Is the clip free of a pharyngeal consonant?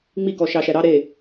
yes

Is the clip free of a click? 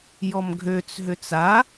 yes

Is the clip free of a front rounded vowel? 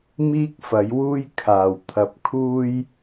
yes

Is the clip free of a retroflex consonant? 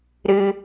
yes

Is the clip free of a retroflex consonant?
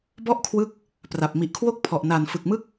yes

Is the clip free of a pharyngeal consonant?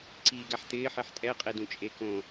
no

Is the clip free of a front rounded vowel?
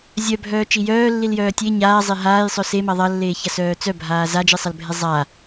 no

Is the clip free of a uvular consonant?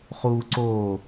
no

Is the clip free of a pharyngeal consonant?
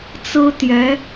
yes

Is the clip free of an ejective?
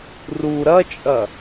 no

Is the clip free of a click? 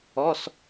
yes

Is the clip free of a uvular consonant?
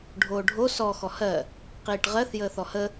no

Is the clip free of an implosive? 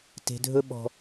no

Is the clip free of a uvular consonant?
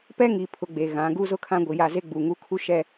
yes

